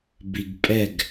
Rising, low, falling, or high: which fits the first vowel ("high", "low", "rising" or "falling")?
low